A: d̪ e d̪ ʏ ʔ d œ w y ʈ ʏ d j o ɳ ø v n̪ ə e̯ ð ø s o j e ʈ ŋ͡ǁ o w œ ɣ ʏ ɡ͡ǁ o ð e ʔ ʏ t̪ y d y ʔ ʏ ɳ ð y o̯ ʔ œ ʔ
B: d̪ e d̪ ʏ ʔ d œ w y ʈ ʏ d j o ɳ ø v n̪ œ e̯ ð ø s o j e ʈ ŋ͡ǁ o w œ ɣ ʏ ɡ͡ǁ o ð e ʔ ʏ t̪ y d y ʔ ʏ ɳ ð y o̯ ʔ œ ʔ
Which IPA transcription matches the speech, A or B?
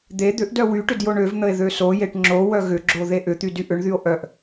A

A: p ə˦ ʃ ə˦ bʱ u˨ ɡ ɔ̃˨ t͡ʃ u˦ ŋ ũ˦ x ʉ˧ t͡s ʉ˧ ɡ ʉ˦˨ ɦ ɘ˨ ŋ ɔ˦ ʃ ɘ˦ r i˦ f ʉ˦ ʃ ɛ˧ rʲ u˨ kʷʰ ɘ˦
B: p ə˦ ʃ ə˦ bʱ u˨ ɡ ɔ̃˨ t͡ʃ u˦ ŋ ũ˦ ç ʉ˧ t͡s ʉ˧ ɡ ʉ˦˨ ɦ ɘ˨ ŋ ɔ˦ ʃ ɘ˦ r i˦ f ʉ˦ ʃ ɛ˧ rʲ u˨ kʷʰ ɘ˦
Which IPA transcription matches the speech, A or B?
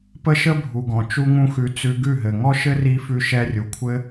A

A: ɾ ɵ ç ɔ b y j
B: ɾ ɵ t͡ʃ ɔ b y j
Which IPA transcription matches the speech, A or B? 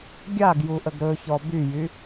A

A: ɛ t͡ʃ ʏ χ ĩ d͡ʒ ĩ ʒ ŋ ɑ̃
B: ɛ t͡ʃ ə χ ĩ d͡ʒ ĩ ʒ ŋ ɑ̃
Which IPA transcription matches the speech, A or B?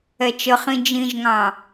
B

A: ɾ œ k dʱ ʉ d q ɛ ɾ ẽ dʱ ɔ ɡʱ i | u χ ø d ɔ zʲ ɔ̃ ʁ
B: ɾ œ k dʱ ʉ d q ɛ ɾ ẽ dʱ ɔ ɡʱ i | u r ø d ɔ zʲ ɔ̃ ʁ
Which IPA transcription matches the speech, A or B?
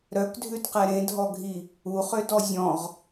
A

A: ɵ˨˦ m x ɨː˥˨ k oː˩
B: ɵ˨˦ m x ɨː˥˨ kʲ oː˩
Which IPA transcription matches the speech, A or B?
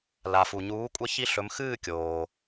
B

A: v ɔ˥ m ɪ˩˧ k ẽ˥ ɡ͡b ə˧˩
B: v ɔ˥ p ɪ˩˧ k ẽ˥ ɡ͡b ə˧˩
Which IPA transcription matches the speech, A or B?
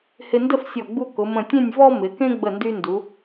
A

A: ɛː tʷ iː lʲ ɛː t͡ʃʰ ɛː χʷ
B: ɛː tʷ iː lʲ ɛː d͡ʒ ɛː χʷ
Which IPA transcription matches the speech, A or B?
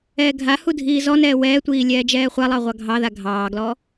B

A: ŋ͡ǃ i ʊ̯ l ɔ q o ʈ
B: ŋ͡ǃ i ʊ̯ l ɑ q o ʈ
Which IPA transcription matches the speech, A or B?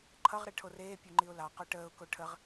B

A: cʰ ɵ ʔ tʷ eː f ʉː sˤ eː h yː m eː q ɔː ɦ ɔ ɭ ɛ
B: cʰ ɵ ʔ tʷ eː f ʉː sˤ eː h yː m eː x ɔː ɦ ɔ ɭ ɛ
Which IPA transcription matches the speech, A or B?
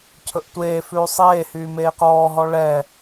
A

